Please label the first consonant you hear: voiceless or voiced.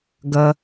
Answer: voiced